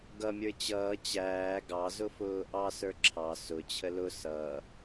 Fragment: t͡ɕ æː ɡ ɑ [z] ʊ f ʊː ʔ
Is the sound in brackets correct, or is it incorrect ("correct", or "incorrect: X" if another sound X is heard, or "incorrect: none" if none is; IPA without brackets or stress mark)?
correct